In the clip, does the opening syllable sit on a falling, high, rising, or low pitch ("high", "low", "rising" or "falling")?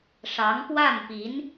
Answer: rising